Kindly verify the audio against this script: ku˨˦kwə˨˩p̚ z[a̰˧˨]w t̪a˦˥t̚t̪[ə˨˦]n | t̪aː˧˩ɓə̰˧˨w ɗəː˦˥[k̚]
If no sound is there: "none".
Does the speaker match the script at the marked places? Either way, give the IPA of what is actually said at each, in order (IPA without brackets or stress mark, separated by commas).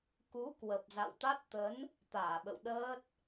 a̰˧˨, ə˨˦, t̚